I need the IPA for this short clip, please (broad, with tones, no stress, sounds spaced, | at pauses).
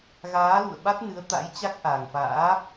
ɣ aː˨˦ l ṵ˧˨ ə̯ ɓ a˦˥ t̚ n ɨ˨˦ ə̯ t̪ a̰˧˥ j t͡ɕ a˦˥ k̚ ʔ a˨˩ ŋ f a̰ː˧˥